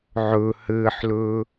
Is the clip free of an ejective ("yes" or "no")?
yes